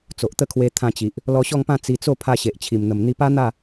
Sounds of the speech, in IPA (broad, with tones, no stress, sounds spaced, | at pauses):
t͡s o˨ ʔ t̪ ə˥˧ kʰ w e˧ t̪ʰ ã˧ t͡ɕ i˨ ʔ | l ɔ˧ ɕ ɔ˥˧ ŋ p ã˥˧ t͡s i˧ t͡s o˥˧ pʰ a˧ ɕ e˨ ʔ t͡ɕʰ i˨˩ m n̪ ə˨˩ m n̪ i˧ p a˦ n̪ a˥˧